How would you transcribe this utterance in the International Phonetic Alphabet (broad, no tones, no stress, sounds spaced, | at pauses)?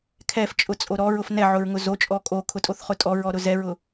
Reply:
kʰ ɛ f t͡ʃʼ ʊ t͡sʼ o ɾ ɔ ɹ ʊ f n ɛ ʕ ʊ ɹ ŋ ʊ z o t͡ʃʼ ɔ kʼ o kʰ ʊ tʼ o θ χ ʊ tʼ ɔ ɹ ɔ ɾ ʊ z ɛ ɹ ʊ